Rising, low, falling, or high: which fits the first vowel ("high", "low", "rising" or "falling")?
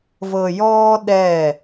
low